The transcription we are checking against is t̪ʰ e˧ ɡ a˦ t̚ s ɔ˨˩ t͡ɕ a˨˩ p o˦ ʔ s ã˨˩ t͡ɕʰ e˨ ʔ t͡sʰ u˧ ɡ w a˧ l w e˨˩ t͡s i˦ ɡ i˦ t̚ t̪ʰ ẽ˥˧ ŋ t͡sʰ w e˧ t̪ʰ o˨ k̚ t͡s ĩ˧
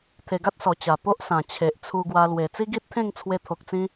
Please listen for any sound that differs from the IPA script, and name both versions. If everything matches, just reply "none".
none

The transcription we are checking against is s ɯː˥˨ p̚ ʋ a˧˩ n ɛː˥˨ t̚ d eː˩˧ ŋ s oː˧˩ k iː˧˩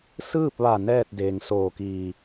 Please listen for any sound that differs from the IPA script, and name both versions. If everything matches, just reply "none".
none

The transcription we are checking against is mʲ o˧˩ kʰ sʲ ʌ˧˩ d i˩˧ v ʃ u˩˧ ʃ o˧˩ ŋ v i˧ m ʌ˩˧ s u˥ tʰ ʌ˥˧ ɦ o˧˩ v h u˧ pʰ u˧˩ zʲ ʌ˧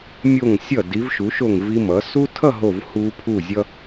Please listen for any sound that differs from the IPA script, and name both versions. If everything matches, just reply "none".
kʰ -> ŋ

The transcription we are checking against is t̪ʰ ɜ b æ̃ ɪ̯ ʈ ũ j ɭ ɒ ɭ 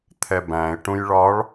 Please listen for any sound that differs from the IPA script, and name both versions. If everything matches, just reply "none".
ɜ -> ɛ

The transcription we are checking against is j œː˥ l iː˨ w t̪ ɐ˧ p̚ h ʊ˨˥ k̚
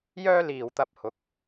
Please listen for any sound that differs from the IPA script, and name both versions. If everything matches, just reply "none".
none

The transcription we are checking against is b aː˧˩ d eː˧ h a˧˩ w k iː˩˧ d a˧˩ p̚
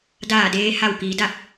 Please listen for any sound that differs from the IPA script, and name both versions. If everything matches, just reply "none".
b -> d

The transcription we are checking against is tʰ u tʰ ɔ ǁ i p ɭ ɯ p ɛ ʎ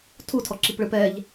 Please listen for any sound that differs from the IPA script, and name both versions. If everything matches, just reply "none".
none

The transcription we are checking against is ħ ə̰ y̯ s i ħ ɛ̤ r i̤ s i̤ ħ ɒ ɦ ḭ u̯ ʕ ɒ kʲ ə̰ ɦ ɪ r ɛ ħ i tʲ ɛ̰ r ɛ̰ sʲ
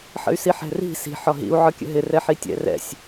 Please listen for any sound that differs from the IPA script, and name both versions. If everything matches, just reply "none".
none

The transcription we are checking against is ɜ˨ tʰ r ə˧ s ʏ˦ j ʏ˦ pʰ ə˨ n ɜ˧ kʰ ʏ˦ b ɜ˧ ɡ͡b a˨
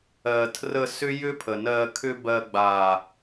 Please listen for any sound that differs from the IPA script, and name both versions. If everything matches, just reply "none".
none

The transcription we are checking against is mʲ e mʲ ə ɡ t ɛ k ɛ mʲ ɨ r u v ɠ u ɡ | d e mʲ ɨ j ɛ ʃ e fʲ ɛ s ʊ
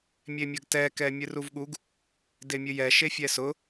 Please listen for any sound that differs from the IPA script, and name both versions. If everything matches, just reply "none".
none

